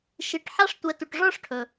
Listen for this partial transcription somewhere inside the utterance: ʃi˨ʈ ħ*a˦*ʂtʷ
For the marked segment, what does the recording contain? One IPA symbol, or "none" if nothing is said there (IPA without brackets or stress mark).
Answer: a˦